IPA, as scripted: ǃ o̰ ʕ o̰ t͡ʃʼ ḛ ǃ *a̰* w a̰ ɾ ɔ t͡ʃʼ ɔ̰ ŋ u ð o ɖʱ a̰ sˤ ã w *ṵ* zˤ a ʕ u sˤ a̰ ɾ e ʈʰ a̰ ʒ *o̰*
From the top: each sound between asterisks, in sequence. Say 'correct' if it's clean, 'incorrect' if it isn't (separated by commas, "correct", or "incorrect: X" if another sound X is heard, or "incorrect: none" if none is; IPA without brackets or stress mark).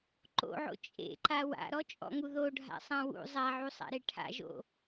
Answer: incorrect: a, correct, correct